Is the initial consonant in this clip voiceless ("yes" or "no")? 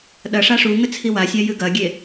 no